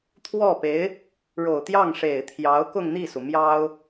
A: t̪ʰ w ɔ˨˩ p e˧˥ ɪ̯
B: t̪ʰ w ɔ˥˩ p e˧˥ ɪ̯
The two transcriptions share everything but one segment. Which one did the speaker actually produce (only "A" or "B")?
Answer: B